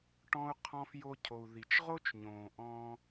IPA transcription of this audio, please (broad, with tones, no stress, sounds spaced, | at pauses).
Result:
ʈ ɔ̃˧ u̯ qʰ ɔ̃˧ f j o˧ cʰ o˨ u̯ ð i˨ t͡ʃ ʁ o˦ t͡ʃ ɲ õː˨ ʔ ɔ̃ː˧